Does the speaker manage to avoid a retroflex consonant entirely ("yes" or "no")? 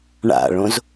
no